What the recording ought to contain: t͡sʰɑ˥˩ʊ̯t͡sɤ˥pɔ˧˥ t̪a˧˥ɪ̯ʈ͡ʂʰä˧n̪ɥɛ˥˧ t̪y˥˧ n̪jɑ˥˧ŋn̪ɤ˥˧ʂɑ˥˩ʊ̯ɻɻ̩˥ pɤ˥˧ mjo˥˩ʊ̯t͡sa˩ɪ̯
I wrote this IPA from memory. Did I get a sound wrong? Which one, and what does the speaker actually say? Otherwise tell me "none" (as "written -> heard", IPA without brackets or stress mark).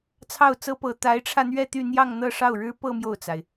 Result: ɔ˧˥ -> ɤ˧˥